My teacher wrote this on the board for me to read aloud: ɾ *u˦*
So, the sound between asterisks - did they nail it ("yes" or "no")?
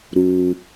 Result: yes